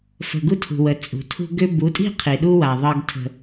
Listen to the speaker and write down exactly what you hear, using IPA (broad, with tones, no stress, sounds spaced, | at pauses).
f ə̤˨ ɡ u˦ tʰ ṳ˨ w ə˨ t͡sʼ ṳ˨ tʰ ṳ˦ ɡ ʏ˦ b u˨˦ tʼ i̤˦ qʰ i˨ ɗ u˦ w a˨ ðˤ ɤ˦ ɡ tʰ ə̤˦